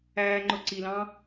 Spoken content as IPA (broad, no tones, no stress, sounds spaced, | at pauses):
æː ŋ͡ǃ ʊ ǀ i l ɑ̃